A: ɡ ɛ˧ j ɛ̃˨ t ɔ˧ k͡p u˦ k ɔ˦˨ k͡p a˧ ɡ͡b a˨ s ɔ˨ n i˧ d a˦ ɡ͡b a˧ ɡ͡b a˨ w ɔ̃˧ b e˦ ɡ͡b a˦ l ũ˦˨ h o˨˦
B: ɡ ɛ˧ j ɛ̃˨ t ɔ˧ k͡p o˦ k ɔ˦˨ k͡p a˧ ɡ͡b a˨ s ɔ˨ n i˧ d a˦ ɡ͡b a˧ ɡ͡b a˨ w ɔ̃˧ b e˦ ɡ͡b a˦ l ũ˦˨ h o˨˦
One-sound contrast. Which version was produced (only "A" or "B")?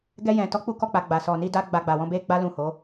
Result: A